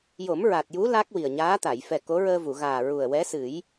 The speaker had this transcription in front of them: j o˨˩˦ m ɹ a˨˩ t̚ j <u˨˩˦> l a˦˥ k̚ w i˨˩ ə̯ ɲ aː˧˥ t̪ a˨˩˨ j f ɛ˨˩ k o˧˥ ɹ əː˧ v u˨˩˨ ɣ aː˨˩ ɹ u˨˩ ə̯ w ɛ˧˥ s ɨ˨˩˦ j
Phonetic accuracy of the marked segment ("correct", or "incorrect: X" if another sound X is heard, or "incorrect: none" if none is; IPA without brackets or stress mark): incorrect: u˧˥